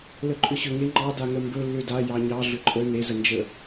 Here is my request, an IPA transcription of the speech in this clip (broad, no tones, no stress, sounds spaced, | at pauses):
l ə ǃʼ ʏ ɕ ʏ ŋ e ŋ͡ǃ ɑ d a ŋ ə m b ɵ lː ʏ d a j ɑ ɲ ɑ ɮ ʏ ǃʼ ə n e z ə n d͡ʒ ə